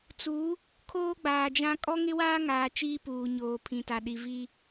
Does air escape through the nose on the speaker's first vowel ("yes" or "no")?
no